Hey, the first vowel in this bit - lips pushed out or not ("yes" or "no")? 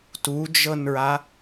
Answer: yes